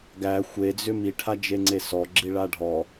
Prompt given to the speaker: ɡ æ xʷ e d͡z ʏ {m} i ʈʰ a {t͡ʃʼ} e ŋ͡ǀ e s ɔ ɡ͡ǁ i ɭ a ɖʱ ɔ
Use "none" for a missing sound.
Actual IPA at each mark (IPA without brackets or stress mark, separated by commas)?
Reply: m, d͡ʒ